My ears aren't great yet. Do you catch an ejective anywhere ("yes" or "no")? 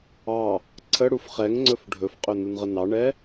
yes